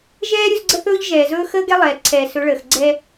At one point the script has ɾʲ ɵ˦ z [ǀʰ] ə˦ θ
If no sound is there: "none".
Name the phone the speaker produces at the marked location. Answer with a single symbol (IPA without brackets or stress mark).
ɡ͡ǀ